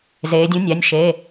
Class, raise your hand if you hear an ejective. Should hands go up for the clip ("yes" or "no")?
no